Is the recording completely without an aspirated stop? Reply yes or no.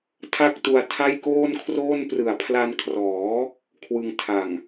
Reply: no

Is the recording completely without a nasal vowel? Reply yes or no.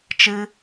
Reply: yes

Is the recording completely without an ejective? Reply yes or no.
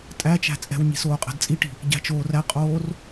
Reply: no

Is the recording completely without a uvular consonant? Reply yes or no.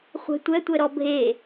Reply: no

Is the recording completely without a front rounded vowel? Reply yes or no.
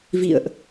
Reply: yes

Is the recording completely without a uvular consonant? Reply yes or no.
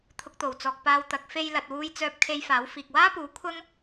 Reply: yes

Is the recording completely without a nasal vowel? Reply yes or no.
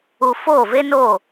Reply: yes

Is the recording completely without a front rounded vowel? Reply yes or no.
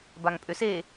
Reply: no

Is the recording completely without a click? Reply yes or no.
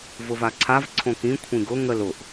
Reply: no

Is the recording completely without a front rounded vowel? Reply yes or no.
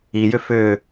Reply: no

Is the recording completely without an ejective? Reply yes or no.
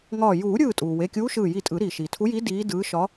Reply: no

